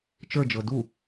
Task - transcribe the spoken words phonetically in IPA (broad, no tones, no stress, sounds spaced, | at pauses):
t͡ʃ ə˞ d͡ʒ ɤ d u